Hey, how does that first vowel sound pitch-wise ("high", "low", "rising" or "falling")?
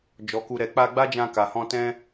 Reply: low